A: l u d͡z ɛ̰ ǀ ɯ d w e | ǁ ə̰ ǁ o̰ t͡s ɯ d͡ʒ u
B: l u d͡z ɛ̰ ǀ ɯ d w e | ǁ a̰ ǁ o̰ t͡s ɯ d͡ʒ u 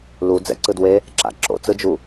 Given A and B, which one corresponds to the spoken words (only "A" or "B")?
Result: B